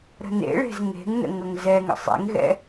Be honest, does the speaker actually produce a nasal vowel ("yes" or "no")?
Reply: no